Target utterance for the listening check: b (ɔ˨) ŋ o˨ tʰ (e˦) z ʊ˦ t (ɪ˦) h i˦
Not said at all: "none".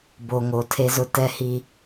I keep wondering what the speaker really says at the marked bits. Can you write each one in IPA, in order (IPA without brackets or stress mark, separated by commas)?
o˨, e˦, ɛ˦